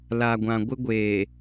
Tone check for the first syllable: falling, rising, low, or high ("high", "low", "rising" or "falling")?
low